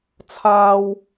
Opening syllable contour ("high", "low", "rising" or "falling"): high